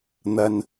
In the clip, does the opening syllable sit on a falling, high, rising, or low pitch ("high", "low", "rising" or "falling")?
low